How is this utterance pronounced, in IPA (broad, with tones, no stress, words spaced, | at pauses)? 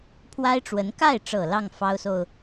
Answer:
pʰwa˥ɪ̯ʈ͡ʂwə˧˥n ka˥˩ɪ̯ʈ͡ʂɤ˨˩ lɑ˥˩ŋ fɑ˥ʊ̯so˨ʊ̯